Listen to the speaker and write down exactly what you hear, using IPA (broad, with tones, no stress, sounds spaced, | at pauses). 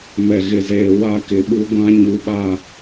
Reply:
m ɛ˨ ɣ ɪ˨ z eː˨ w a˦ k ɪ˨ ɓ u˦ ɡʷ ã˦ ɲ u˨ ɓ a˨